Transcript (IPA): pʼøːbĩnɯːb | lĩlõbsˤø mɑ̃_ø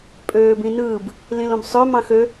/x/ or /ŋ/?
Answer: x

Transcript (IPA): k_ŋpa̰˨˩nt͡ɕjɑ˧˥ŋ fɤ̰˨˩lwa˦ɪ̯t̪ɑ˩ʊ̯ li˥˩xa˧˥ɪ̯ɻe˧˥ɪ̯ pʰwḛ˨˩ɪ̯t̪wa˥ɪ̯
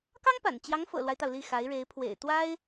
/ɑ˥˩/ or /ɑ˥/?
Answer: ɑ˥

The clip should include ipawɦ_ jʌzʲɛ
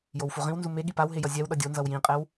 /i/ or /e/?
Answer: e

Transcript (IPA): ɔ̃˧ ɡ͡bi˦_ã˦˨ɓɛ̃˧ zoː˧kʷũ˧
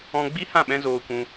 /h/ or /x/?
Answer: h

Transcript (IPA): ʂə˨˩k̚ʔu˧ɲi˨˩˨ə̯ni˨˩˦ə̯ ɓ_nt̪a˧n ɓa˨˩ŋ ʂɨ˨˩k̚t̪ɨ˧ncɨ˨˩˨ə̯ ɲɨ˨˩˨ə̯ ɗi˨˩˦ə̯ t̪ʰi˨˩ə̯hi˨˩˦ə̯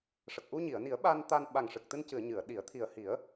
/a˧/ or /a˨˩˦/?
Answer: a˧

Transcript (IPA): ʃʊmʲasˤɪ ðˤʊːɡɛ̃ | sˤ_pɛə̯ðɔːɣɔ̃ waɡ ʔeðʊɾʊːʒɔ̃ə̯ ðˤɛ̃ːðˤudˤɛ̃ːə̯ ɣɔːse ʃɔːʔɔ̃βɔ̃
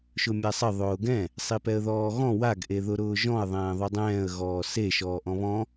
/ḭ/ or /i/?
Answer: i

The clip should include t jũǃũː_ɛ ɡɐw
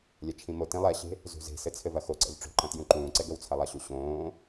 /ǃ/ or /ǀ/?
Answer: ǀ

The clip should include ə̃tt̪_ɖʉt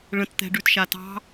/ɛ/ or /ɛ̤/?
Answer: ɛ̤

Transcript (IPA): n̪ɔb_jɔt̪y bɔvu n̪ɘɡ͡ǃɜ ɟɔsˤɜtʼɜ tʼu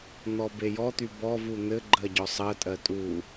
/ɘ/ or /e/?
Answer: e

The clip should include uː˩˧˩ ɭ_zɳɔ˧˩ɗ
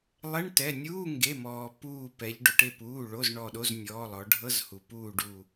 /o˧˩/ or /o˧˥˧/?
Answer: o˧˥˧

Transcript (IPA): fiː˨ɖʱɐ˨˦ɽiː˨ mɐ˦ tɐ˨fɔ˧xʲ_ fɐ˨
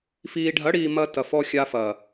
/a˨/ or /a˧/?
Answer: a˧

